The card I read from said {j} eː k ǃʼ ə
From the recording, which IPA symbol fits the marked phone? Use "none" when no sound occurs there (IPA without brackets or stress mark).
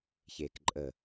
ç